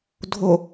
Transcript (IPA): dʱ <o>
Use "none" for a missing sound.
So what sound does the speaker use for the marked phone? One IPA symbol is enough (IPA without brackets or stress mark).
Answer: o